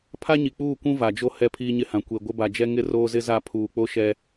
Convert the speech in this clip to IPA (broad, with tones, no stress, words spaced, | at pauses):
pʰa˦ɲi˨k͡puː˦˨kʷũ˦ va˨d͡ʒo˦ hɛ˦˨pʰiː˦ɲɪ˦hã˨ kʷe˨ ɡʷɪ˦ba˨d͡ʒɛ˦ ŋɪ˦roː˦zɪ˦za˦˨ pʰuː˨k͡po˦ʃɛ˦